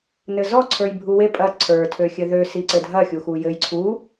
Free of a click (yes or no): no